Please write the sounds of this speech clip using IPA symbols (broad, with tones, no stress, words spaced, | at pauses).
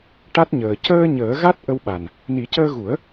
ʈa˦˥t̚ɲəː˨˩ cəː˧ ɲəː˨˩˦ɣa˦˥t̚ ʔə˧wɓa˨˩n | ni˨˩˦cəː˧ɣu˨˩˦ə̯